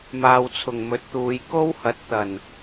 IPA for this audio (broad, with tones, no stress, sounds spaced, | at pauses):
m aː˨ w t͡sʰ ʊ˨˩ ŋ m ɵ˨˥ t̚ t̪ uː˨˧ j k o˥ w h ɐ˨˥ t̚ t̪ ɐ˨˩ n